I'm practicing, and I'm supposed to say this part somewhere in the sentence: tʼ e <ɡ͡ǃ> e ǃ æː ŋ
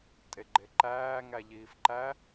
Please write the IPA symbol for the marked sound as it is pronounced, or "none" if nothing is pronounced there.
ɡ͡ǃ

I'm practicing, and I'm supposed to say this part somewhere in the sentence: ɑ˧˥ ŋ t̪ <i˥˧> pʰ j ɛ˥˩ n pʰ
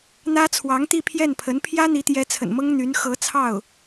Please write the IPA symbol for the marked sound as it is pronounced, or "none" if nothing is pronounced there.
i˥˧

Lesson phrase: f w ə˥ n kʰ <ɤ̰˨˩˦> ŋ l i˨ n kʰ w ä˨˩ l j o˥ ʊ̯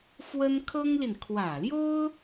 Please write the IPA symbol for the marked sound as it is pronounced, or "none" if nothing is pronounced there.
ɤ˥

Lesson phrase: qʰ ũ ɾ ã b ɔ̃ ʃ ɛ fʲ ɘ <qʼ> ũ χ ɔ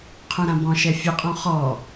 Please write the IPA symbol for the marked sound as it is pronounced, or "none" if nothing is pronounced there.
qʼ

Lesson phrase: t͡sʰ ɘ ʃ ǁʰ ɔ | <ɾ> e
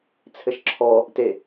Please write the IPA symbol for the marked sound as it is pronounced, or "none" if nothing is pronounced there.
t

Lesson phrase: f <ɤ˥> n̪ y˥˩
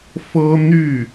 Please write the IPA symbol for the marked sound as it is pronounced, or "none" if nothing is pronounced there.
ɤ˥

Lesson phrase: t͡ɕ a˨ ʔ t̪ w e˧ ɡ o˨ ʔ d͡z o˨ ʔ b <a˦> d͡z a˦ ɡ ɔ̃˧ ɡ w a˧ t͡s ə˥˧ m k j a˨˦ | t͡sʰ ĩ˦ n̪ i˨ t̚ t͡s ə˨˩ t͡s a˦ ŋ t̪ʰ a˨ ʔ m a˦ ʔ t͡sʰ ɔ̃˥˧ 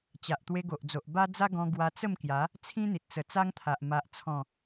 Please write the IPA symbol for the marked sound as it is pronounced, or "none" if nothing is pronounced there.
a˦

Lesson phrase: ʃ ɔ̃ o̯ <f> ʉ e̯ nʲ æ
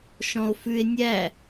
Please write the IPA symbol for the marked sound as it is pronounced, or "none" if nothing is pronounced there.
f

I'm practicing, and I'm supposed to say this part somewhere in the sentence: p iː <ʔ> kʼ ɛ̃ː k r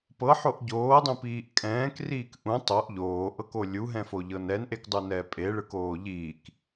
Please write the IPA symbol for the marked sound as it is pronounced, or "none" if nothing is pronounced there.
ʔ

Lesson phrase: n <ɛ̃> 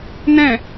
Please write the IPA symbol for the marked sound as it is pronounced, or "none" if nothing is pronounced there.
ɛ̃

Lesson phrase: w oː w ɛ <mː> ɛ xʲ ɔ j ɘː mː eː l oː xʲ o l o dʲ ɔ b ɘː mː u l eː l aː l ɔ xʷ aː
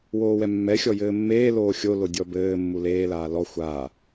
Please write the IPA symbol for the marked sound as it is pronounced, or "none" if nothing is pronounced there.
mː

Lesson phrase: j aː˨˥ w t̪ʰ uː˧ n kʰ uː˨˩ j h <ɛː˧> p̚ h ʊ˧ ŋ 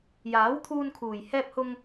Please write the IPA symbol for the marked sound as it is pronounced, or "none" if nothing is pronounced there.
ɛː˧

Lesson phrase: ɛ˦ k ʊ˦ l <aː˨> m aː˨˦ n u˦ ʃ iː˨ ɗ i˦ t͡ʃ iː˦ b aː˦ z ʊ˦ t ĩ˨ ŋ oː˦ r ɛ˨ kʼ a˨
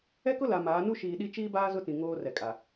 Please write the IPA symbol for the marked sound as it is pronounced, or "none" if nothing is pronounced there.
a˨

